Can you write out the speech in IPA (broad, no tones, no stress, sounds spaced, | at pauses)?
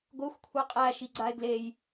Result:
ɡʷ e xʷ kʷʰ e qʼ æ ʃ i ɡ͡ǀ a e̯ ɡ l e j